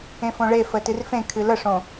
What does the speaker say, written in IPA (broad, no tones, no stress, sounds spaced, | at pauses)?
ẽ f õ ɭ e f ə t ɨ r f ẽ kʰ ɨ l ə ʂ õ